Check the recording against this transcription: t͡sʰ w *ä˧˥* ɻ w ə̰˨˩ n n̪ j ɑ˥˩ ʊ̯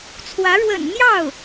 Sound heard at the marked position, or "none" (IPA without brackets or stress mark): ä˧˥